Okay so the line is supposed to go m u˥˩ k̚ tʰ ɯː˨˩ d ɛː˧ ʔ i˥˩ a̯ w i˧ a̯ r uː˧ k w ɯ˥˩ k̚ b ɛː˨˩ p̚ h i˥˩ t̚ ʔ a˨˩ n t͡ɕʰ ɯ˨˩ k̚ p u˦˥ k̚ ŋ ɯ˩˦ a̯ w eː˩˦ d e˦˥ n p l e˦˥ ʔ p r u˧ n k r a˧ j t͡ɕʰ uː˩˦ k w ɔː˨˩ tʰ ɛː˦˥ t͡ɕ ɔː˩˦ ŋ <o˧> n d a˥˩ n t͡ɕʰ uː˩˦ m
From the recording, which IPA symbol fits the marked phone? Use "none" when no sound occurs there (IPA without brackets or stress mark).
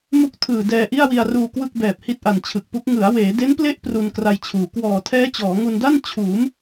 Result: u˧